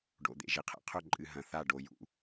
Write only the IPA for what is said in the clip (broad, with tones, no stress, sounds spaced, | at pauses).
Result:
ɖ o̰˨ d̪ ḛ˨ ʒ i˦ qʰ ḛ˨ qʰ ɵ˦˨ ǃʼ ɨ˨ ɦ ɐ̃˨ θ a˦˨ ɖ o˨ j ṵ˦